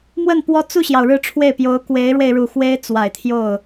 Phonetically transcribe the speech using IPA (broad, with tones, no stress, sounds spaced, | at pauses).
m w ə˥˩ n p w ɔ˥ t͡s u˥˩ ɕ j ɑ˩ ʊ̯ ɻ ɻ̩˥˧ ʈ͡ʂʰ w e˥˩ ɪ̯ p j o˧˥ ʊ̯ k w e˧˥ ɪ̯ ɻ w e˧ ɪ̯ ɻ u˨˩ x w e˥ ɪ̯ t͡s w a˨˩ ɪ̯ t̪ʰ j o˥˩ ʊ̯